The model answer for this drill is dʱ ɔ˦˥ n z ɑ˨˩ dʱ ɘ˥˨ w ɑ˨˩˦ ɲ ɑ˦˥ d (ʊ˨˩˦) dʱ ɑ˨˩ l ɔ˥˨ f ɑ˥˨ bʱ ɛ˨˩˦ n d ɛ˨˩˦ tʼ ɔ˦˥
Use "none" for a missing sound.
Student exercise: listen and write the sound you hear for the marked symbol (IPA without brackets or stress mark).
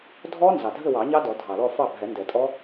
ɔ˨˩˦